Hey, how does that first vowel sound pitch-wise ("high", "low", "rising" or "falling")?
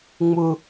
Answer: high